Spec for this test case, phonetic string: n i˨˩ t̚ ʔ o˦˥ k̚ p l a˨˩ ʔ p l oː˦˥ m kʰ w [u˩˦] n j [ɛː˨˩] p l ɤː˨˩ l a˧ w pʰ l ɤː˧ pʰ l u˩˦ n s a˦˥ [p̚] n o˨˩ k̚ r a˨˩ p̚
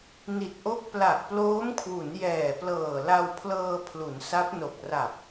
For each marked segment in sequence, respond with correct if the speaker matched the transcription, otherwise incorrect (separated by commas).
correct, correct, correct